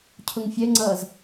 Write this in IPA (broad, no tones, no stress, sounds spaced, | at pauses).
cʰ ʊ ŋ fʲ ɛ ŋ͡ǀ ʌː z